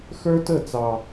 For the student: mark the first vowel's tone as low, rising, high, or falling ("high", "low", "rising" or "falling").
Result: high